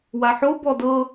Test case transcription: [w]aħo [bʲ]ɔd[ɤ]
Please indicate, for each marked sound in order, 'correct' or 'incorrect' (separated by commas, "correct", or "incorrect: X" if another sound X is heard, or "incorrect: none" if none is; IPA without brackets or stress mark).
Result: correct, incorrect: b, correct